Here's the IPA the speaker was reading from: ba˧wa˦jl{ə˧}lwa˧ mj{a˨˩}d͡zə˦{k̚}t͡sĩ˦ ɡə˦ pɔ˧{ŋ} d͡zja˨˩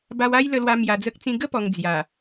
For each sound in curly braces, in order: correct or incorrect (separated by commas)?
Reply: correct, incorrect, correct, correct